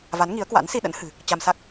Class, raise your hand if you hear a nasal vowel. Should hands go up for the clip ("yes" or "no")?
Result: no